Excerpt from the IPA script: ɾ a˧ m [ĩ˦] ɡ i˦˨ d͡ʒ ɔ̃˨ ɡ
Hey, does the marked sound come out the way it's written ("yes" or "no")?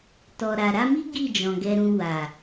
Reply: no